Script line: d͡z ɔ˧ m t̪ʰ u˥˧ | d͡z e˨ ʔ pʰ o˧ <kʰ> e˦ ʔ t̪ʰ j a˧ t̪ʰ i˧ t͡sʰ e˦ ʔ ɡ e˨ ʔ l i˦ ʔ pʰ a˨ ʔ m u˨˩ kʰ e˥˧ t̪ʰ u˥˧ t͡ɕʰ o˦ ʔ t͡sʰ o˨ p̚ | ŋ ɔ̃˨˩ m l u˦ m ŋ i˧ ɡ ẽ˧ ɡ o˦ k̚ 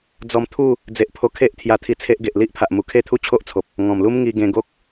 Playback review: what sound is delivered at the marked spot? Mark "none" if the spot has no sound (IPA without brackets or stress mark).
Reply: kʰ